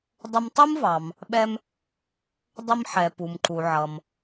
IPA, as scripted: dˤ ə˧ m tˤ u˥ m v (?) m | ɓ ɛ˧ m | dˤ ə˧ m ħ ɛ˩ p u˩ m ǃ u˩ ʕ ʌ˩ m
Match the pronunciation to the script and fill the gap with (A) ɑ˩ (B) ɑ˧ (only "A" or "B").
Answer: A